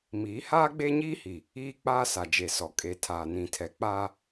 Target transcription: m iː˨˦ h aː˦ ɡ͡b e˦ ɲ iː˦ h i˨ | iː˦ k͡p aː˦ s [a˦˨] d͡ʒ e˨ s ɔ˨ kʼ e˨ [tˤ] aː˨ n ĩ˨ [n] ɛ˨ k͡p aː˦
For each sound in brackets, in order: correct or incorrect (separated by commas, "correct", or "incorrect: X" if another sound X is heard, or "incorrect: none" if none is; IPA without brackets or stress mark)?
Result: incorrect: a˨, incorrect: tʰ, incorrect: tʰ